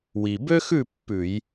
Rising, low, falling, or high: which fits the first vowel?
low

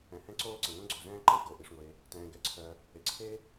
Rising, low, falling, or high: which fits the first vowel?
low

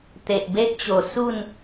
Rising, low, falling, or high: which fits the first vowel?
low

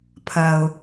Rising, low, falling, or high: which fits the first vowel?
low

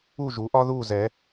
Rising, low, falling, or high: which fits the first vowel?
falling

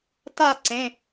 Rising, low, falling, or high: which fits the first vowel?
falling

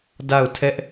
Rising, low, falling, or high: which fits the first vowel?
falling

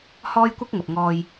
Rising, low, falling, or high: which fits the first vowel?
high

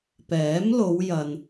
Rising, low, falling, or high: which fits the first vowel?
rising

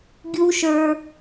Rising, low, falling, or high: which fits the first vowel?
high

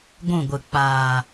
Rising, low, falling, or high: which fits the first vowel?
falling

